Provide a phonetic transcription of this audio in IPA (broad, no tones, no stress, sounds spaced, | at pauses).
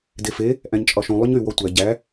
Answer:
d e f e | ʔ æ̃ ɲ t͡ʃʼ ɒ ʃ ũ lˠ y ɲ y w ɔ tʷ æ ɟ æ